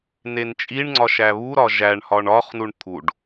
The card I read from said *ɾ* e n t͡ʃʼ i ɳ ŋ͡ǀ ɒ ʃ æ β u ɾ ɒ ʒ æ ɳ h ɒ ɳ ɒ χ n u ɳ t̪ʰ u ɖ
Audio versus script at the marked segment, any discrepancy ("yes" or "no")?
yes